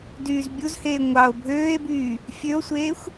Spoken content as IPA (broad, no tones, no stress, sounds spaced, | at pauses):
d yː z bʲ u z h eː ŋʷ ɑ o̯ bʱ øː e̯ b yː | fʲ ø o̯ sʷ eː xʷ